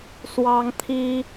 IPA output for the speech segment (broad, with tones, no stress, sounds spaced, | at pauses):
s w ɑ˥ ŋ t̪ʰ i˥